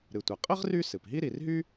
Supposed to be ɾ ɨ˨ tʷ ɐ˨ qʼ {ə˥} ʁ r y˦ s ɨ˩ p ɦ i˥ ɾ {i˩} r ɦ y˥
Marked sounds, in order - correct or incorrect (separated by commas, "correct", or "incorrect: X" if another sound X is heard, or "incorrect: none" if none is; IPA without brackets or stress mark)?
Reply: correct, incorrect: i˨